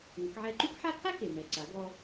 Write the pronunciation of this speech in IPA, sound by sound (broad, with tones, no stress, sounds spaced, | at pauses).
ŋ ə˩˧ k ʕ ɛ˧ ǃ y˥ k ħ a˥ kʰ a˥ k e˩ m ɛ˩ ǀ a˩˧ ɡ ɔ˧